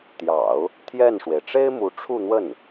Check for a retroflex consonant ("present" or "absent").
present